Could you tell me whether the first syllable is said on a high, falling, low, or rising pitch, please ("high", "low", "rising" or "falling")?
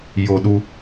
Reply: high